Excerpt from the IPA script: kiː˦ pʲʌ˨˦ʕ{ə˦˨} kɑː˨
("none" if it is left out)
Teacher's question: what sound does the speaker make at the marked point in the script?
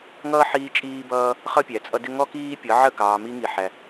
ə˦˨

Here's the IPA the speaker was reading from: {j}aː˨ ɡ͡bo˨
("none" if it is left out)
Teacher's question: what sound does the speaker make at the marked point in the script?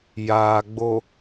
j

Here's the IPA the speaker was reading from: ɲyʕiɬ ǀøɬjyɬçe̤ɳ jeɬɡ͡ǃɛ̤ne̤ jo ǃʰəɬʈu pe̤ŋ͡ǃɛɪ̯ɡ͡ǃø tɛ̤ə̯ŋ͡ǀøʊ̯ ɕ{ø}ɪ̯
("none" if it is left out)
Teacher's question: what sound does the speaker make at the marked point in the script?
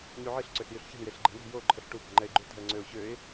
ø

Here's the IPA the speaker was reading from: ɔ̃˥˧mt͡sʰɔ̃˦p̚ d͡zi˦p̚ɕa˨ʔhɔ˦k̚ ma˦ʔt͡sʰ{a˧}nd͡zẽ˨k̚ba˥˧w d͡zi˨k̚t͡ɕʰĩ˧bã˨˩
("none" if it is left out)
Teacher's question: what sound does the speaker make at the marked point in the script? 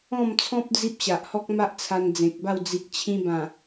a˧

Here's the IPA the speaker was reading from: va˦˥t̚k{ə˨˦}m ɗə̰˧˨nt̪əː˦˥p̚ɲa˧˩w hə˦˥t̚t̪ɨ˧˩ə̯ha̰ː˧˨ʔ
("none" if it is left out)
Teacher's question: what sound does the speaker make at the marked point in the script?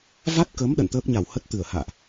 ə˨˦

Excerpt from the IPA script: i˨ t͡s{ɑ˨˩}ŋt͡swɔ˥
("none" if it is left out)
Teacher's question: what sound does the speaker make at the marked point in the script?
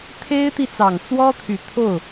ɑ˨˩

